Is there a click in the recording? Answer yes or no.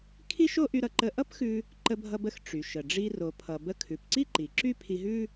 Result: yes